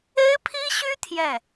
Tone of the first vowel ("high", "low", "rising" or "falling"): high